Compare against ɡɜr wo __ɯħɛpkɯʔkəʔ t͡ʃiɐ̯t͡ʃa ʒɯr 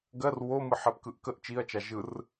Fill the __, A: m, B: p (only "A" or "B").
A